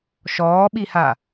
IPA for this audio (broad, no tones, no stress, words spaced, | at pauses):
ʃɔːɓiha